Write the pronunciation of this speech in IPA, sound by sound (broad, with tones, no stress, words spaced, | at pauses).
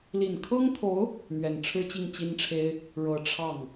li˨˩nkʰɤ˥ŋt̪ʰo˧˥ʊ̯ | mɥɛ˨˩nʈ͡ʂʰɻ̩˥t͡ɕi˥˩ŋ t͡ɕi˥nʈ͡ʂʰe˥ɪ̯ | ɻɤ˧˥ ʈ͡ʂʰɑ˥˩ŋ